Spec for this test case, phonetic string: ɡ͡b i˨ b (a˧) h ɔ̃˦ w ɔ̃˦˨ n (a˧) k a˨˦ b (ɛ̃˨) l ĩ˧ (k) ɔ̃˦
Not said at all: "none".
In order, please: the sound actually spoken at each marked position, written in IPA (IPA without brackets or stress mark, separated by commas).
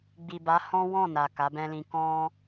a˨˦, a˨, ɛ̃˦, k